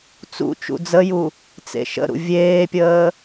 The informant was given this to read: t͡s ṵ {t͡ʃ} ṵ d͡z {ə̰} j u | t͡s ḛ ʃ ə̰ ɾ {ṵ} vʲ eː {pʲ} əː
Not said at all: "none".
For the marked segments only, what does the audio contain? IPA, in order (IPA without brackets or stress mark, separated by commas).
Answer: t͡ʃ, ə, ṵ, pʲ